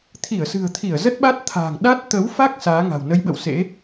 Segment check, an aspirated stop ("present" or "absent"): present